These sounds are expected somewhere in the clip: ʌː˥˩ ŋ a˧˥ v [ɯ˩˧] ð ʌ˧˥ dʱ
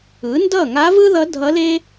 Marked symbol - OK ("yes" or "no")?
no